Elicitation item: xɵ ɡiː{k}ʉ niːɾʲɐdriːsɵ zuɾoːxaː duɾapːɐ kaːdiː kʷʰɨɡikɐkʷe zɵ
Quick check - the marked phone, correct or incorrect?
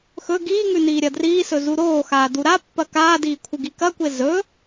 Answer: incorrect